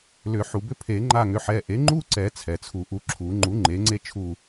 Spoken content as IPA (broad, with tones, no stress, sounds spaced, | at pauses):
l ʏ˨˩˦ ħ u˩ b ʏ˥ pʰ e˨˩˦ ŋ͡ǃ a˦˨ ŋ ʏ˩˧˩ ħ ɛ˩˧˩ ʔ e˩˥ ŋ͡ǃ u˥ ǀ ɛ˨˩˦ t͡sʰ ɛ˩ t͡sʰ u˨˩˦ ʔ u˩˧˩ ǁʰ u˨˩˦ ŋ͡ǃ u˩˥ ŋ͡ǃ e˩˥ ŋ͡ǀ e˥ t͡ʃʰ u˦˨